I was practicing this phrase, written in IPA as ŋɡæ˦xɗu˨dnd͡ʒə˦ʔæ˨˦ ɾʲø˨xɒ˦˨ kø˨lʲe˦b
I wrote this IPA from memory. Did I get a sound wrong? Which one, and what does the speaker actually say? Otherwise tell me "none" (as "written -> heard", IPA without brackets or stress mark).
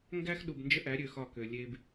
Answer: d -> b